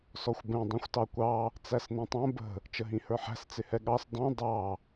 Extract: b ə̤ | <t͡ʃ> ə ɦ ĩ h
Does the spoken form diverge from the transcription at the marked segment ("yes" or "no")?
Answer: no